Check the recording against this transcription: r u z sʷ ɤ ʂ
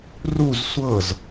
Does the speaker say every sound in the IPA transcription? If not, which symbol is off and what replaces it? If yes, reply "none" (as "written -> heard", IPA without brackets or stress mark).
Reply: ʂ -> z